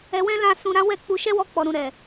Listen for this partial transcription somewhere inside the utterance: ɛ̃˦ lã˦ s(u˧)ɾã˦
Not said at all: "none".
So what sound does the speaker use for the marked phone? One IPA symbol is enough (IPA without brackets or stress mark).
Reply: ũ˧